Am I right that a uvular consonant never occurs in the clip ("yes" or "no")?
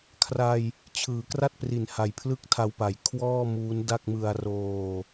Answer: yes